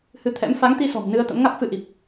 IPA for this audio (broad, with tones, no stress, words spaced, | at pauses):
hɨ˨˦ t̪ʰɛ̰˧˥m fa˨˦ŋt̪i˧sɔ̤˨˩m nɨ˧ə̯t̪ə̰˧˥mŋa˦˥k̚fɨ˧ ʔi˨˩p̚